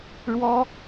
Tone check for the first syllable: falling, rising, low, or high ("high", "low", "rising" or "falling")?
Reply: high